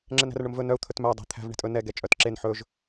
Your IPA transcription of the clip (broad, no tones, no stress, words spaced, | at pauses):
ŋ͡ǁɛnæ̤rɳɵmvɵ nœu̯ t̪ʰɵtmæ dˤe̤ t̪ʰæ̤v ɳe̤tʼɵ nɛ ɡɛt͡ʃʼœt ǁen ħɵʒ